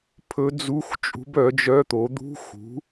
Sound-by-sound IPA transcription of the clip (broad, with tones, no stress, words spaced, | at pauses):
pʰɵ˧˥d͡zu˧˥˧x t͡ʃʼṳ˧˥bœ˩˥d͡ʒœ˧˥˧t̪o˩˥ d̪ṳ˧˥˧ xṳ˩˥